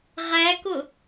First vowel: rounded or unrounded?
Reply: unrounded